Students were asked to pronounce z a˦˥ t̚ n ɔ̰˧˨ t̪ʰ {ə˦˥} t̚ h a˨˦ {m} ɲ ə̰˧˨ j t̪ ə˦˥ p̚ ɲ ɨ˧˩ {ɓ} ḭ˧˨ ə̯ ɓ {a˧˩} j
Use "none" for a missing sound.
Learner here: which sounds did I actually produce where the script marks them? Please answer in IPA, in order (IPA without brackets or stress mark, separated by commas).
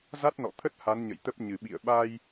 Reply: ə˦˥, n, ɓ, a˧